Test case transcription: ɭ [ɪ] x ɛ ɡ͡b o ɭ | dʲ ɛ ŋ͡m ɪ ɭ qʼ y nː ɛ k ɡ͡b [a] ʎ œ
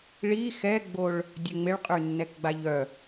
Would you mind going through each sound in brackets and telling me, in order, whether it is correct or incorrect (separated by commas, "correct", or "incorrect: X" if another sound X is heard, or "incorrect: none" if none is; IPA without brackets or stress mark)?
incorrect: i, correct